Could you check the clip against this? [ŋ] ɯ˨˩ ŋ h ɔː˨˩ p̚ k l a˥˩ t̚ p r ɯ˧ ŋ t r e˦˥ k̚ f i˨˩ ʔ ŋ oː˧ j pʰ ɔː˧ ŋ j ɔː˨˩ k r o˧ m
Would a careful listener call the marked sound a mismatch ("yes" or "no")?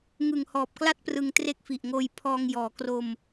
no